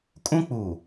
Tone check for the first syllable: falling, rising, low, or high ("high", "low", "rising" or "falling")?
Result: high